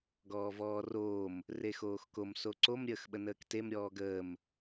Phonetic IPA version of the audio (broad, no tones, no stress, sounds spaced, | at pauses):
ɡ ɔː v ɔː r oː m | r e x oː x k o m s o ǀ o m ɾʲ əː x ɓ ə n əː k t e m ɾʲ ɔː ɡ əː m